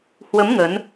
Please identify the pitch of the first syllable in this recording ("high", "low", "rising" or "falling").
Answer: rising